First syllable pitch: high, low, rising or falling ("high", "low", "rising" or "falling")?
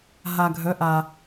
low